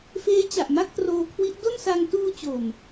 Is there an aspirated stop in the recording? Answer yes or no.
yes